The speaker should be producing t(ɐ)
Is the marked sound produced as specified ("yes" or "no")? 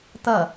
yes